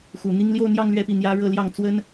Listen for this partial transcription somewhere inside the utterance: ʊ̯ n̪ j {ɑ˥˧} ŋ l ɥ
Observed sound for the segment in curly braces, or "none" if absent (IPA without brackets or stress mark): ɑ˥˧